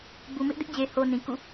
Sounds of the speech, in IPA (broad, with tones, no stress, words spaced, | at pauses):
bu˨mɪ˦ʔdɪ˦ʔd͡ʑe˨ ho˦nĩ˨ kṵ˦˨